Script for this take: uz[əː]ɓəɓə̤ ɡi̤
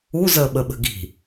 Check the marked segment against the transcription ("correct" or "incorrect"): correct